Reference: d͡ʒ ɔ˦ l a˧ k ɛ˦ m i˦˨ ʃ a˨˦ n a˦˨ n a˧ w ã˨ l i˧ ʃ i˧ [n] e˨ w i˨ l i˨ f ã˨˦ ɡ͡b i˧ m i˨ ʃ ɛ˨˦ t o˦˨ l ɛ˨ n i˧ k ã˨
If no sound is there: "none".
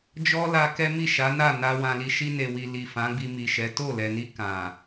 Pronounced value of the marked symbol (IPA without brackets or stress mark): n